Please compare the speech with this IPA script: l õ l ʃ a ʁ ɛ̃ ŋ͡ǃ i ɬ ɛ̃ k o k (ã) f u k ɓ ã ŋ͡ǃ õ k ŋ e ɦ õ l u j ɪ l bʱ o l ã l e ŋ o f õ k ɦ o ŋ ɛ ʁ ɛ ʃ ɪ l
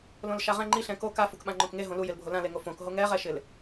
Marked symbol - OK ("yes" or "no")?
no